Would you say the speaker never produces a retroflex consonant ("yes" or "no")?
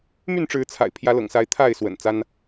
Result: no